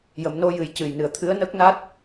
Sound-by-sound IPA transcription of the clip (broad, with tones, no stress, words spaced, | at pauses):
jə˨˩˨mno˧ jɨ˨˩˦jcɨ˨˩jnɨ˨˩ə̯ t̪ʰɨ˧˥ə̯nəː˦˥k̚na˦˥t̚